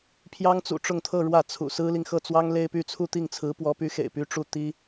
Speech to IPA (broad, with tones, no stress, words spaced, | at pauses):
pʰjɑ˥ŋt͡sṵ˨˩ʈ͡ʂʊ˥˧ŋt̪ʰɤ˥˧ ɻwä˥˩t͡sʰṵ˨˩ sɹ̩˥li˨ŋxɤ˥˩t͡swɑ˥ŋ le˥ɪ̯py˥˧ t͡sʰu˥˧t̪i˥˩ŋt͡sʰɹ̩˧˥ pwɔ˧˥py˧˥xḛ˨˩ɪ̯ py˥ʈ͡ʂu˥˩ t̪i˥